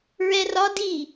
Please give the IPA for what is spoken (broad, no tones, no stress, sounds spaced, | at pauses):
ɹ ɛ r ɒ d i